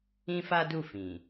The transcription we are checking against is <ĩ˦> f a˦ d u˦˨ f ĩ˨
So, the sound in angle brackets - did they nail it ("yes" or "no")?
yes